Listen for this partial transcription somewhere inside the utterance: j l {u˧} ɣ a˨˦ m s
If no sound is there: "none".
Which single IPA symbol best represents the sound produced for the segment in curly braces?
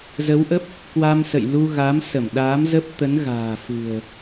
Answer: u˧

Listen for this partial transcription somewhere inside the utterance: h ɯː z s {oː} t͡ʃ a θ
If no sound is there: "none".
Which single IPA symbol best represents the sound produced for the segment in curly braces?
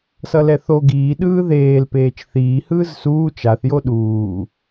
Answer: uː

